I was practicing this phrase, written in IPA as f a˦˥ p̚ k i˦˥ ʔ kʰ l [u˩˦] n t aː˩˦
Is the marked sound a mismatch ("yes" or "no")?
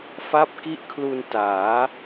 yes